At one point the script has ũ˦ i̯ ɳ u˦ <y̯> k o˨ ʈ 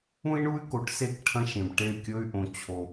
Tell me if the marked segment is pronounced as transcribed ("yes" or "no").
yes